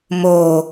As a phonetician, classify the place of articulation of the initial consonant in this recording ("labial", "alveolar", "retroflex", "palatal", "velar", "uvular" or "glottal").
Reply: labial